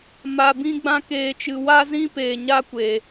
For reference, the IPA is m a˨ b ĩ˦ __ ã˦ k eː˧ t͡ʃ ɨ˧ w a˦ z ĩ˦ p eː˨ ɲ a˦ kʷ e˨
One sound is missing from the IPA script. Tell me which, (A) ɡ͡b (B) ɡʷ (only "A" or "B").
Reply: A